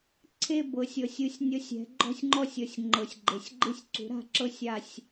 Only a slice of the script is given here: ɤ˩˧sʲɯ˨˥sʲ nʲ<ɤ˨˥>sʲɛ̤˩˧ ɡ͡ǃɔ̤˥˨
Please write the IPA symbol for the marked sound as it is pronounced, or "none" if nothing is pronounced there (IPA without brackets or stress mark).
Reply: ɤ˨˥